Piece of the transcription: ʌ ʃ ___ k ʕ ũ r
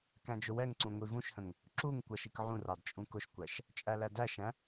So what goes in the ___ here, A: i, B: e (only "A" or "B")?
A